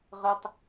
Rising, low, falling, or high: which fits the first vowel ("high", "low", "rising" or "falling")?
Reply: high